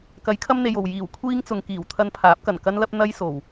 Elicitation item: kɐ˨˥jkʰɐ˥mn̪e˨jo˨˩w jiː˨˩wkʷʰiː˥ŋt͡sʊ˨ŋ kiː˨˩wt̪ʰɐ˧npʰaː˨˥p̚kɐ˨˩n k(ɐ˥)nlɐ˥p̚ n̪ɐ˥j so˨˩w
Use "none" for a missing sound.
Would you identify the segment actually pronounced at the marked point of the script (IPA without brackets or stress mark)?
ɐ˥